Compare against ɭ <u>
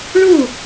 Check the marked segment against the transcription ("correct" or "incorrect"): correct